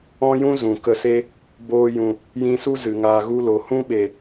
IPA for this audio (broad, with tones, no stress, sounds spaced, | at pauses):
ɔ̃˦ j ũ˦ z ũ˨ k ə˧ s e˦ | b oː˧ j ũ˨ | j ĩ˧ s u˦ z ɨ˨ ŋ aː˧ ɣ u˦ l o˨ h ũ˦ ɓ e˨